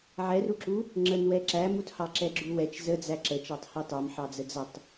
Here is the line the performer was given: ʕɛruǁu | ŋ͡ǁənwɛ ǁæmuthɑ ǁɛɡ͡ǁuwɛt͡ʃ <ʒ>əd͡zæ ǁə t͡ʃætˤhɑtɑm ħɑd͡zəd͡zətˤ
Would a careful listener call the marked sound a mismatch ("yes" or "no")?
yes